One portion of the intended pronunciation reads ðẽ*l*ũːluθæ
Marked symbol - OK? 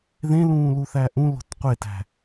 yes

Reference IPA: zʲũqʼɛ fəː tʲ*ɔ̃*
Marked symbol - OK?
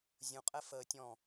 yes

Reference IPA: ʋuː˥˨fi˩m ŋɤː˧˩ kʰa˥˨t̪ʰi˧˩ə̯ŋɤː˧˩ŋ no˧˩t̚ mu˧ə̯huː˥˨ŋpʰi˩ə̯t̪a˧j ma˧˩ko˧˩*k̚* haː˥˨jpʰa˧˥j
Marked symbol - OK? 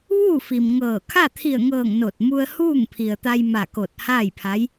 no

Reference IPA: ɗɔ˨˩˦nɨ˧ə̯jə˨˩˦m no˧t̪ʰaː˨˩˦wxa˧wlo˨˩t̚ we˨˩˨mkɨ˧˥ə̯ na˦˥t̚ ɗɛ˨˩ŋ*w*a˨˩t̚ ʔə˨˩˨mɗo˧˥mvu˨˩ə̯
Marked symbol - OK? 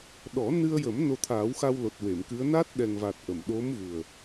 no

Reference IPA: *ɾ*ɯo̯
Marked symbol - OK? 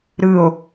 yes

